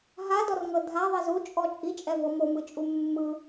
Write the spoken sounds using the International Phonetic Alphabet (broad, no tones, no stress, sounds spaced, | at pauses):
ɦ a d ɔ r ŋ ɤ dʱ a ðˤ i z u t͡ʃʼ ɔ t͡ʃʼ i t͡ʃʼ ɛ v ɤ m o m ɯ t͡ʃʼ u mː ɯ